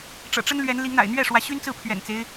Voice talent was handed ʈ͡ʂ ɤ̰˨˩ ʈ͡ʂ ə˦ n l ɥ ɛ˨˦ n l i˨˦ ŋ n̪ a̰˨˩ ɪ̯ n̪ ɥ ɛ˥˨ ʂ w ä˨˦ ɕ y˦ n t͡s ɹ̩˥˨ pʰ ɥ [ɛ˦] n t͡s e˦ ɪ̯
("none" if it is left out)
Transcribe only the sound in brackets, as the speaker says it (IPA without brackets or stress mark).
ɛ̰˨˩